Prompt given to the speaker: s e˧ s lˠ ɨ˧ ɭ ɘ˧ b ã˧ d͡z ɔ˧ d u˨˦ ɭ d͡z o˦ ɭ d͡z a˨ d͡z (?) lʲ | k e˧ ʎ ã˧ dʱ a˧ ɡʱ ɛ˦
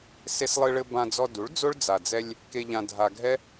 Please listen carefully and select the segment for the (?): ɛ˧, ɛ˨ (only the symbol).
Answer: ɛ˧